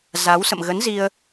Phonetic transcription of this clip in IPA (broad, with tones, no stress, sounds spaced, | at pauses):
z a˨˦ w s ə̰˧˨ m ɣ ə˨˦ n z i˧ ə̯